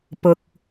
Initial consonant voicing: voiceless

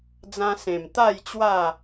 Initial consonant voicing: voiced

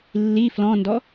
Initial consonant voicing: voiced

